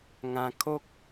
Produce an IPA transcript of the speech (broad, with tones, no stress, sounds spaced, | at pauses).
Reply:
ŋ ã˧ kʰ o˦ k̚